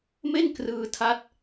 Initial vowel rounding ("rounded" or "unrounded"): unrounded